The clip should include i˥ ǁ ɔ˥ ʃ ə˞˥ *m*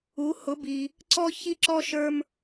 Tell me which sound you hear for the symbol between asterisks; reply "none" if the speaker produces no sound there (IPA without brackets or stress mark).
m